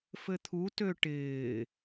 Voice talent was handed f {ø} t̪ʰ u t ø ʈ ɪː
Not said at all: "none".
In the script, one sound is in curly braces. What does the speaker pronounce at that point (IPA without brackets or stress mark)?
ɘ